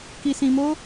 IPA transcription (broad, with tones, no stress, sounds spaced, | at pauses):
k i˧ s ĩ˧ m o˦